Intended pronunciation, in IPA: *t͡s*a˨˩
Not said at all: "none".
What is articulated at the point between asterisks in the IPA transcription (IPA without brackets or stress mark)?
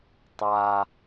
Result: tˤ